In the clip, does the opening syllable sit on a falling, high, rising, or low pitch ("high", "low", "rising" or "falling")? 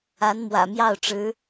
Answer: rising